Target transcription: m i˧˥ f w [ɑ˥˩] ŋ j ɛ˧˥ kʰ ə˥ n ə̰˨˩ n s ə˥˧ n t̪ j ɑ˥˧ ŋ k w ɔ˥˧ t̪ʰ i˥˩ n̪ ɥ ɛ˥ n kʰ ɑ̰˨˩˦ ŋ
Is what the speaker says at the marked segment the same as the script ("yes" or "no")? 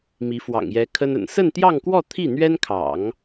no